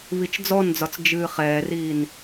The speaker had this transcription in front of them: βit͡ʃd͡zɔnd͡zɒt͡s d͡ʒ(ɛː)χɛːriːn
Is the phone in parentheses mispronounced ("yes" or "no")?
yes